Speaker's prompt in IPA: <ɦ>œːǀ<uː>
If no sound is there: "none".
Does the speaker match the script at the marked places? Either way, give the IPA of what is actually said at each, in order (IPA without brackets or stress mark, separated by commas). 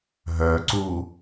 ɦ, uː